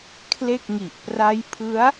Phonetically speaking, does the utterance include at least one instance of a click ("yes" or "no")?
no